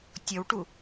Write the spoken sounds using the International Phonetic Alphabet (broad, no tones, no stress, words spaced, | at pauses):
tʲɔwʈu